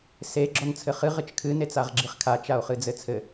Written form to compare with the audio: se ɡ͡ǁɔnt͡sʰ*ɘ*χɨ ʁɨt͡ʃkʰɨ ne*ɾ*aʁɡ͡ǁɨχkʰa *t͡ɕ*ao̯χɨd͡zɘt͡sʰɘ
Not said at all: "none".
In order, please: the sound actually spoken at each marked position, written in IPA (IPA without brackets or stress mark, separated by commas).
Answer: ɘ, t͡s, t͡ʃ